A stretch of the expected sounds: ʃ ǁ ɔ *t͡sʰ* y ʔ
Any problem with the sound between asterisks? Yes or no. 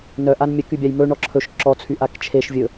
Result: no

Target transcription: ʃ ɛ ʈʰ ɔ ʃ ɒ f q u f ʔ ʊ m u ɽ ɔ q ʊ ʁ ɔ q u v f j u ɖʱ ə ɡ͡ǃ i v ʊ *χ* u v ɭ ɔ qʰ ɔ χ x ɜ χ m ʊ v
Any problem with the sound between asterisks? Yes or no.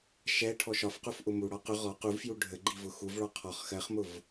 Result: yes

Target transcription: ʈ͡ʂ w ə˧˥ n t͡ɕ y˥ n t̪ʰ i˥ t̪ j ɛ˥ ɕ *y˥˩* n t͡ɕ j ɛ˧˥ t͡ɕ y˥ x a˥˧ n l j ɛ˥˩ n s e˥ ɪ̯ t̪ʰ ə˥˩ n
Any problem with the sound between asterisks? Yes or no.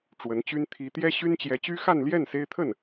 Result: yes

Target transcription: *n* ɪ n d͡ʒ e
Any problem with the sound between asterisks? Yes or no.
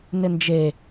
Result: no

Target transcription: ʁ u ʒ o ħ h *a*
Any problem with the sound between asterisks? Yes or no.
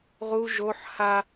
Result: no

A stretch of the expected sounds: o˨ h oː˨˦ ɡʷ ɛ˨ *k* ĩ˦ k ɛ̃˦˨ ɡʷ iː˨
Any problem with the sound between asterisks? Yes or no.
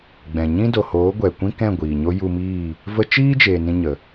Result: yes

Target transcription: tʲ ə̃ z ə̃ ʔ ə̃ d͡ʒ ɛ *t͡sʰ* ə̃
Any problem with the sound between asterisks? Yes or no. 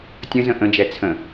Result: no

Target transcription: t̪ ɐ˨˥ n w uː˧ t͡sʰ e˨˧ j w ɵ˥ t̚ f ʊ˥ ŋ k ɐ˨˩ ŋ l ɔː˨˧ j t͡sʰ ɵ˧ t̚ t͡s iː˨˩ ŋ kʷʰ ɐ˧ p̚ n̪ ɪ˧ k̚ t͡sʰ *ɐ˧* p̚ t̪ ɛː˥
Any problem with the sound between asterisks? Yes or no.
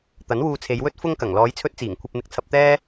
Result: no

